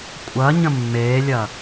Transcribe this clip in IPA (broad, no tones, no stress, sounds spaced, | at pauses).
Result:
kʷʼ ɐ ɲ ə̃ mː eː lʲ ɐ